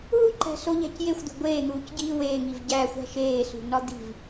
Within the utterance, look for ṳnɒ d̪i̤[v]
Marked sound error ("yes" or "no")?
no